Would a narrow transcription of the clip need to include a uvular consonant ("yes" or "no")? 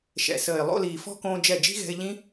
no